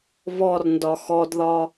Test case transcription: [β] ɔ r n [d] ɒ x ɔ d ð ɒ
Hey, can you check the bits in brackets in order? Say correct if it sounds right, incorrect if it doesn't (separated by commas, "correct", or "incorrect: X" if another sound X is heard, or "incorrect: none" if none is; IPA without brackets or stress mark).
correct, correct